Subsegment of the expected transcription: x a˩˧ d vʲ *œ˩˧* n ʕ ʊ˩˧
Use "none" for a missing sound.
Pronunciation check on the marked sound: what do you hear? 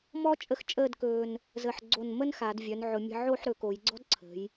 œ˩˧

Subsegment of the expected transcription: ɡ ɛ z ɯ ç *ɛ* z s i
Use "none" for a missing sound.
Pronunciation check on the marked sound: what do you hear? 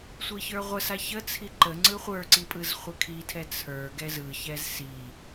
ɛ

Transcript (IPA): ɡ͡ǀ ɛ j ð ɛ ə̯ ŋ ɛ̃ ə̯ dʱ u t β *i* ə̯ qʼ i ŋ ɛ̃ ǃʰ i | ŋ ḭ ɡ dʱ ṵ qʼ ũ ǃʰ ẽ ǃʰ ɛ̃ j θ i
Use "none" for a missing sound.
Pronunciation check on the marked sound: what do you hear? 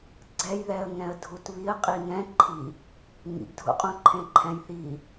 i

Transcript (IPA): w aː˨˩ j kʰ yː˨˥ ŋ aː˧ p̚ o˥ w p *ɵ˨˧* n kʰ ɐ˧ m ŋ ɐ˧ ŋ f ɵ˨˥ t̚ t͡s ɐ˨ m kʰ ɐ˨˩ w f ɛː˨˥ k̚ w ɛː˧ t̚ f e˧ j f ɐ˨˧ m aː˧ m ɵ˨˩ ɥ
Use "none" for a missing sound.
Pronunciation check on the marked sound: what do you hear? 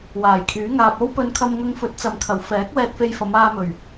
ɵ˧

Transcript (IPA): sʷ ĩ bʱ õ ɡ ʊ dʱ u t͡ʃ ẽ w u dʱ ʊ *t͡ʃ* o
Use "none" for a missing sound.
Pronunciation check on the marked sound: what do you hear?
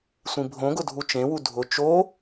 t͡ʃ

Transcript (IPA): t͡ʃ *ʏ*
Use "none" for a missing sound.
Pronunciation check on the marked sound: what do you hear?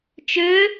ʏ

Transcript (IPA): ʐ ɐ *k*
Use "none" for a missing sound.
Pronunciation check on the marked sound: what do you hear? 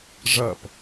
p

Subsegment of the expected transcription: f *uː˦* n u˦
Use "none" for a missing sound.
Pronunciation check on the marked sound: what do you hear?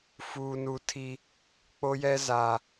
uː˦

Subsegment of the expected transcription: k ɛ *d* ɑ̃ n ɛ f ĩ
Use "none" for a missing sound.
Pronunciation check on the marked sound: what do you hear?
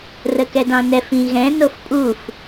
d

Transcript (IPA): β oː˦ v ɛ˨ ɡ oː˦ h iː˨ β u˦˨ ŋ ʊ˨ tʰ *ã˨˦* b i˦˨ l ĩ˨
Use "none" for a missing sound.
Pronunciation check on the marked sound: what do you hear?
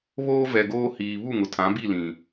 ã˨˦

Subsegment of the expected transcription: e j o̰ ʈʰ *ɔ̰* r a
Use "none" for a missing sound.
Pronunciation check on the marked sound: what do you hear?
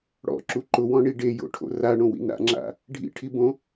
o̰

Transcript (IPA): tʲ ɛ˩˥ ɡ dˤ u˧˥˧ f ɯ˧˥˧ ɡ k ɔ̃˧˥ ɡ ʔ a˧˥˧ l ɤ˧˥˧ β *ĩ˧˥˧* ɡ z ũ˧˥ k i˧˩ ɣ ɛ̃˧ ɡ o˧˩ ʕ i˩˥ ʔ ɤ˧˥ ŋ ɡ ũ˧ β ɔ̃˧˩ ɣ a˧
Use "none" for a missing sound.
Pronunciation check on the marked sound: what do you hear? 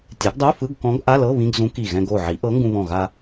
ĩ˧˥˧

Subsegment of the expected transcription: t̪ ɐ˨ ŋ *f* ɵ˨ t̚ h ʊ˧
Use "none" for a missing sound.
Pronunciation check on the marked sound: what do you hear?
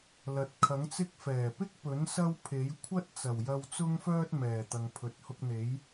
pʰ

